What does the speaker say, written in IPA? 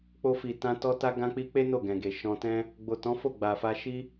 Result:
k͡po˧fi˨tã˧ tɔ˧ta˧ ɡã˧k͡pi˧k͡pe˦ no˦˨ɡɛ̃˨ɡe˨ ʃɔ̃˧tɛ̃˦ | ɡ͡bo˨tɔ̃˨˦fo˦˨ ɡ͡ba˨fa˧ ʃi˦

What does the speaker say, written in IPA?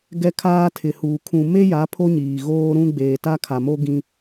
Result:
ɡɛ˦kʰaː˦ tʰɪ˨huː˨ kʰũ˨ me˦ja˨˦ pʰo˦ɲiː˨ɣoː˦ɾũ˦ ɡ͡beː˨ta˦kʰa˨mo˦ ɡĩ˦

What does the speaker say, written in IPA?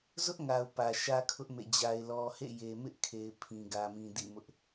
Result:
zʊ˦ʔŋa˨ʊ̯ pä˨ʃä˦kʰʊ˦ʔ mḛ˦˨d͡ʑa˦ɪ̯lɔ˦ hḛ˦˨je˨mɪ˦ʔkʰe˨ɪ̯ pʰĩ˨ɡä˨mĩ˨ dḭ˦˨mʊ˦ʔ

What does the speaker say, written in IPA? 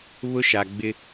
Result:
βʊ˦ʃa˨ɡ͡bɪ˦

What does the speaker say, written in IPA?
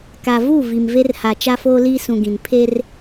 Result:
ka˨vu˦˨ vi˨mve˦r ha˨t͡ʃa˦foː˦liː˦ sũ˨ɡĩ˨n pʰe˦r

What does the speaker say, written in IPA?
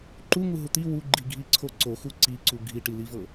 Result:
ǃuŋuɦu t̪i wuɡ͡ǃiɡʱiǀʰo ǀoxu ǀiǀu ɡʱiʈilivɤ

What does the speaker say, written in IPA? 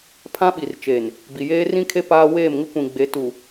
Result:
pʰã˦ɓi˨rt͡ʃeː˨n | bi˨jeː˦ rĩ˦kʰe˦ paː˦ weː˦˨mŋɪ˦ kʷĩ˨ɡ͡be˨˦ tu˨

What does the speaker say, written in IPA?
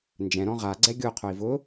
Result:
nd͡ʒɛ̃ɾɔ̃ ʁaɡ͡ǀɛ ɡʲoqʰoi̯ vʊ

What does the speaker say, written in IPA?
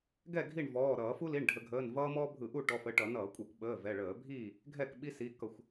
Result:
ɡɛ˥˨ ɡʱi˥˨ɳvɔː˩˧˩ ɾʌː˧˩˧fu˦li˩˧˩ɳ ɖʱə˧˩˧ɡʱəː˩˧˩n vʌː˦ mɔː˦bʱɯ˧˩˧ ʔu˥˨ʈɔ˩˧˩fə˩˧˩ ʈʌ˧˩˧nʌː˧˩˧kʷʼʌ˧˩˧kʷ ɓəː˩˧˩ vɛ˩˧˩ɭəː˧˩˧bʱiː˥˨ | ɡʱɛ˥˨kɓi˦si˩˧˩ kʌ˧˩˧xʷ

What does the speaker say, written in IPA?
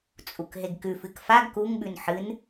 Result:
t͡sʼukɦeɡkʉfɨk faɡ kuŋɓʉn ħɨn

